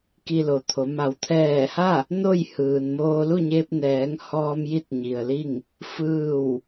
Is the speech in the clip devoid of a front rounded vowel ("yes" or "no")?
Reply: yes